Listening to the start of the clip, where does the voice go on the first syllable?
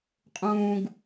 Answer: low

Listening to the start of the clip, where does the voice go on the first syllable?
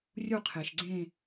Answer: falling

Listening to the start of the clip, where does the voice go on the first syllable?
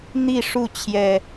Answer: falling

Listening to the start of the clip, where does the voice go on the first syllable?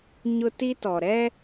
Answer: high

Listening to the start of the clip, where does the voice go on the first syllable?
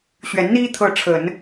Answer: rising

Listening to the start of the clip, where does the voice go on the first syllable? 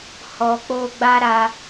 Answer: low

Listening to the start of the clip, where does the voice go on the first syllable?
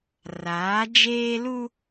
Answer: rising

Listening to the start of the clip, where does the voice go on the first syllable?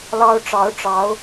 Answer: high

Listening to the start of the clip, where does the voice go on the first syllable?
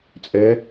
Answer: rising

